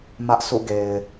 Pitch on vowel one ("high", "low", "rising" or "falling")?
high